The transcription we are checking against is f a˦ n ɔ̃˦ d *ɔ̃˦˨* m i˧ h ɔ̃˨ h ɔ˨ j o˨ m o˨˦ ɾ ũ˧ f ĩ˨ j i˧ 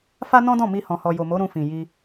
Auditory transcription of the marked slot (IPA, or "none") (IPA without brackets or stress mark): ɔ̃˦˨